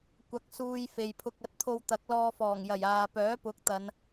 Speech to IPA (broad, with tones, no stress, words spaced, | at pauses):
kʷɐ˧k̚ suː˧jfe˨jpʰʊ˧k̚ ɐ˧t̚t̪ʰo˧wt̪ɐ˨˥k̚ lɔː˧fɔː˨˩ŋjɐ˨˩j aː˨ pœː˨˥pʊ˨˥k̚ t̪ɐ˨˧n